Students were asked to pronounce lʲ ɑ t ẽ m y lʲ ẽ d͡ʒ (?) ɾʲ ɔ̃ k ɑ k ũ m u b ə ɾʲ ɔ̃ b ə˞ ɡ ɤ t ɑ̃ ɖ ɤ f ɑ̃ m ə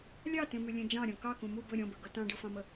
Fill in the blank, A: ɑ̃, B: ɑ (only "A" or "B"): A